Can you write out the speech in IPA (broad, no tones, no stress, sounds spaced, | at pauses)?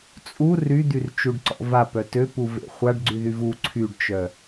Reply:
t͡sʼ u r y d̪ y r t͡ʃ u ɖ ǀ ɔ̰ v a p œ t ø p u v ḛ χʷ a ɖ ɡ͡ǀ y ð y v u ǀʰ y ɖ t͡ʃ œ